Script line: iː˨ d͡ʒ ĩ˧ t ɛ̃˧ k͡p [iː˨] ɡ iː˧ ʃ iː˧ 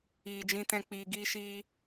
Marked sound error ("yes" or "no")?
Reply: no